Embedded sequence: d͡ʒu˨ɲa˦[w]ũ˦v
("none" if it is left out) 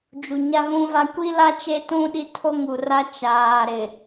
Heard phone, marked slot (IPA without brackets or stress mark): ɣ